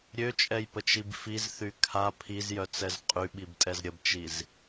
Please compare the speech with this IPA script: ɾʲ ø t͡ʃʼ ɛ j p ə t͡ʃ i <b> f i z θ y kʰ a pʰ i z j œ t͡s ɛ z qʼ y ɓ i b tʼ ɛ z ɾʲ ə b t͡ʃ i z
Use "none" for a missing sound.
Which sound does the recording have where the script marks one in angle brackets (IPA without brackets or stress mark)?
b